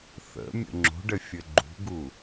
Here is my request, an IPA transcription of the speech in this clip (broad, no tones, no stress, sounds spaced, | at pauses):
θ ə̰ mʲ ə̰ ŋ͡ǁ o̤ ɖ ɘ fʲ ɘ ɡ͡ǃ ṳ ɡ u